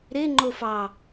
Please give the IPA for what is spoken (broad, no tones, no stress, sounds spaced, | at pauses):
ɾ e ŋ͡ǃ o f ɑ